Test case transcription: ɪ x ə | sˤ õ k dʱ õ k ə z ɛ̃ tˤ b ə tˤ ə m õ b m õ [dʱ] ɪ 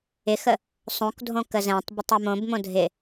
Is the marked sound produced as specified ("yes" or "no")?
yes